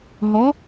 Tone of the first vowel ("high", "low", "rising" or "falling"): rising